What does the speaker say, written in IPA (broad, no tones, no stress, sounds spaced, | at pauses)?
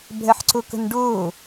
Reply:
bʱ ɛ ħ ǀ ʊ k ə̤ n ɖ ʊː